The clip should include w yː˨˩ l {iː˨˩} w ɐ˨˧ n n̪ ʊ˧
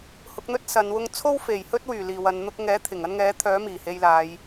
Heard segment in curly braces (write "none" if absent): iː˨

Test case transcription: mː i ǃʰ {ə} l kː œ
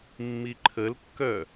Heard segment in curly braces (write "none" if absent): ə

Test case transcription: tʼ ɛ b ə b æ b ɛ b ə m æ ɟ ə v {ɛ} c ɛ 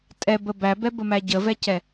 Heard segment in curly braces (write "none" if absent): ɛ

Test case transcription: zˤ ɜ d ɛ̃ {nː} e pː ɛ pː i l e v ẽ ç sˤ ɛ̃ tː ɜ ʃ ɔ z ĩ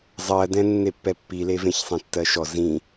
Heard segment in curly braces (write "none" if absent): nː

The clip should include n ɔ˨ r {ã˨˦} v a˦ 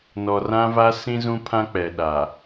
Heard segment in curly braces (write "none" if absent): ã˦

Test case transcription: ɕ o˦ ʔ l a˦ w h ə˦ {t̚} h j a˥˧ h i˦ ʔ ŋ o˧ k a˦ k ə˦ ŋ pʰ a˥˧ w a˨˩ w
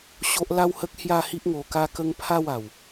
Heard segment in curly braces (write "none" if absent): k̚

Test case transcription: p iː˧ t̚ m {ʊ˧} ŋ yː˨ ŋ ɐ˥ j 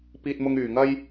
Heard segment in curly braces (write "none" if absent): ʊ˧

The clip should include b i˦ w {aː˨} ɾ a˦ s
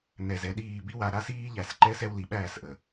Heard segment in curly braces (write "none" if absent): a˨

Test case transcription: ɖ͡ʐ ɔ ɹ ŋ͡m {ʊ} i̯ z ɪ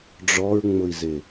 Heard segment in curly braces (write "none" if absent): ʊ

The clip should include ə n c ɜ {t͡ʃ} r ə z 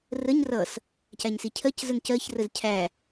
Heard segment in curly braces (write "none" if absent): ç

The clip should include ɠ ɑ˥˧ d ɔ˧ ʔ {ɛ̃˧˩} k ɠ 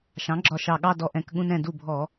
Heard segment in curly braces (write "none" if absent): ɛ̃˧˩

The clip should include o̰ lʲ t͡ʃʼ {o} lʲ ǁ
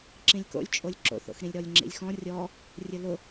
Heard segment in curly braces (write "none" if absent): o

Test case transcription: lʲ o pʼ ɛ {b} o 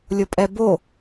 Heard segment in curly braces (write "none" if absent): b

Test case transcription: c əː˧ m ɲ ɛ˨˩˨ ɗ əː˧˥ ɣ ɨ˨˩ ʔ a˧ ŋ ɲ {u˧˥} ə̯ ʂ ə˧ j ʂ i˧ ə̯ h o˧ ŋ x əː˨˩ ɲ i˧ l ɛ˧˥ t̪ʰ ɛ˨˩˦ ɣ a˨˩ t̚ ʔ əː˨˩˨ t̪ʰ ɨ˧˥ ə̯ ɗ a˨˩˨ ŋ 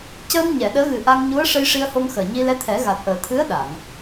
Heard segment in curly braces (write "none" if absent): u˧˥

